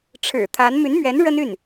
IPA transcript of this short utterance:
ʈ͡ʂʰ ɻ̩˨˩ t̪ʰ a˧˥ n m y˧˥ n m ɥ ɛ˧˥ n ɻ ə˥ n y˥˩ n

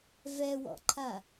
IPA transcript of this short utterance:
v ɛ w ɔ̰ ǃʰ a

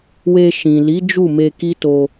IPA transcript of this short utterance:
w e˧ ʃ ĩ˨ l i˨˦ d͡ʒ u˦˨ m e˧ k i˦ t o˧

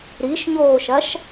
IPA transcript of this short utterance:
ɾ i ʃ ɲ oː ʃ ɐ ʃ

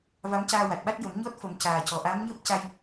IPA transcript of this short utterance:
v a˧˥ m c aː˧ w a˨˩ t̚ ɓ a˦˥ t̚ j ə˨˩˦ m ɲ ɔ˦˥ t̚ f ə˨˩˦ m c aː˨˩ c ɔ˨˩ ʔ a˧˥ m ɲ əː˦˥ p̚ c a˧ j

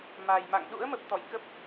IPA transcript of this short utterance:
m a˨˩ j m a̰˧˨ ŋ ɗ ṵ˧˥ ə̯ m ə˨˩ p̚ t̪ ɔ̰˧˨ j k ə˦˥ p̚

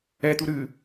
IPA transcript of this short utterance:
ɛ t̪ u ɾ ɨ

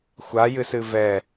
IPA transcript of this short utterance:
xʷ a j ɨ s ɨ v ɛ

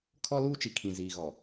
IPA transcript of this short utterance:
kʰ ɔ˦ l uː˦ t͡ʃ i˨ kʰ ĩ˨ z iː˨ ɣ ɔ˨

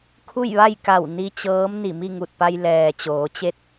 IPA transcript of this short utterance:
kʰ u˥˨ j ʋ a˥˨ j k a˧˩ w n i˧ t͡ɕ ɤː˧˥ m n i˧˩ m i˥˨ ŋ u˧˩ t̚ p a˧ j l ɛː˩ t͡ɕ oː˩˧ t͡ɕ e˥˨ t̚

